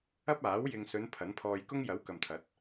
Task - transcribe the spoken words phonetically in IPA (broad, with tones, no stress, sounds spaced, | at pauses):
ɐ˥ p̚ aː˨˥ w j ɪ˨ ŋ s ɵ˨˧ n pʰ ɐ˨˥ n pʰ ɔː˧ j k ʊ˥ ŋ j ɐ˨˥ w k ɐ˨ m t̪ʰ ɐ˨˥ t̚